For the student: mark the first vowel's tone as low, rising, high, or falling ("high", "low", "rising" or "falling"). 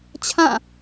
falling